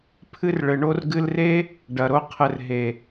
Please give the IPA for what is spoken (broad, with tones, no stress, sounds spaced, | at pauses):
pʰ ɨ˦ r ɭ ɘ˨ ɳ o˦ r ɡ ɨ˧ l r e˦ | ɖ ɐ˨ ɾ o˧ qʰ ɘ˨ r ɦ e˨